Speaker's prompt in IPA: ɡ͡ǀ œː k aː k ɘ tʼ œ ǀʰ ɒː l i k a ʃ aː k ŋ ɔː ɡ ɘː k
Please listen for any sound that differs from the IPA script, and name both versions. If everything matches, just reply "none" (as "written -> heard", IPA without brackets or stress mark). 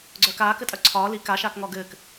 none